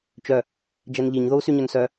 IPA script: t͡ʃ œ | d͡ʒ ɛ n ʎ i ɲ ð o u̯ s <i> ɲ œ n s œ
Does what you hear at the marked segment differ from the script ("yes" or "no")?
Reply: yes